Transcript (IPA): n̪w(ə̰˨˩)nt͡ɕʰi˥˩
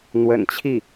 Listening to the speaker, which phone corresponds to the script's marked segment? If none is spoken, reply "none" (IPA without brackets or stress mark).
ə̰˨˩